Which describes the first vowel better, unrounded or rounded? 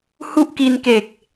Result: rounded